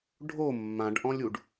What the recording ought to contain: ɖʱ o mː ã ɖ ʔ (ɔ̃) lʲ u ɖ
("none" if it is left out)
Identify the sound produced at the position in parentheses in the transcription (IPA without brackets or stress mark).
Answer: ɔ̃